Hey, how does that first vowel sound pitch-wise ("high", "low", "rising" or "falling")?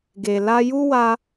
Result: low